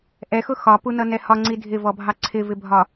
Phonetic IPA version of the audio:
ʔɛxʊ xɒpunʌnɛ hɒŋ͡ǀi dʱɪvɔbʱɑ ǀʰɪvɪbʱɒ

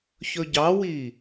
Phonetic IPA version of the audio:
çɵɟɑwi

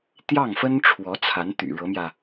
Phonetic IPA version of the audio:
t̪jɑ˥˩ŋfə˥n ʈ͡ʂʰwɔ˧˥t͡sʰa˧˥n t̪y̰˨˩ ɻɤ˧˥mjä˧

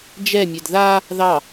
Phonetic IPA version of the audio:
d͡ʒɛmʲɛd ða | ðɑ

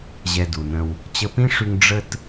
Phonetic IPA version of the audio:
ʑɛ˧du˨nə̃˧w | t͡ɕə˧pĩ˦ʂy˧ŋ ɖ͡ʐə˧t

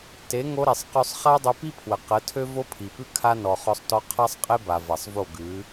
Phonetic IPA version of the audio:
te˨˦ ŋo˧ɾe˨sˤqø˧sˤ χa˦ dˤɵ˧pi˦pʰwə˨ qə˨˦tʰø˦ vo˦pʰi˨pʉ˦ kʰa˦ nɔ˨ χɔ˧sˤtɔ˧ qʰa˦sˤ qʼe˦ba˨ va˨sˤvo˦˨ɡʉ˨˦

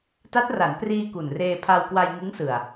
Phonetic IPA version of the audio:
ta˦˥t̚ra˩˦n priː˧ ku˨˩nreː˧pʰa˧w kwa˧jŋɯ˦˥ŋsɯ˨˩a̯

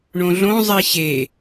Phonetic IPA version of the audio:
ɳõɮõzˤi ɕe

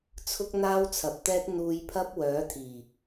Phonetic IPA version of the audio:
t͡sʰʊ˥k̚n̪aː˥wt͡sʰɐ˨˥p̚t̪ɛː˥t̚ n̪uː˧jpʰɐ˥p̚ wœː˨˥t̪ʰiː˨˩

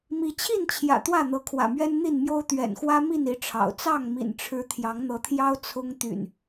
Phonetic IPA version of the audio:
mi˨˦t͡ɕʰi˥˨nt͡ɕʰjä̰˨˩ t̪wä˥˨n̪ɤ˨˦kʰwä̰˨˩mɥɛ˦n n̪i˥˨nmjo˦ʊ̯ t̪ɥɛ̰˨˩nxwä˦ mi˥˨ni˨˦ʈ͡ʂʰɑ̰˨˩ʊ̯ t͡sɑ˥˨ŋmḭ˨˩nʈ͡ʂʰɻ̩˨˦ t̪ʰjɑ˨˦ŋn̪ɤ˨˦t̪ʰjɑ˦ʊ̯ t͡sʰʊ˦ŋ t̪y̰˨˩n

